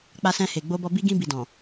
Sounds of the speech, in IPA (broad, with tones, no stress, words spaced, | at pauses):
k͡pa˧sɛ̃˧he˨ ɡ͡bo˧bɔ˧ bi˧ɡĩ˧ bi˨dɔ̃˨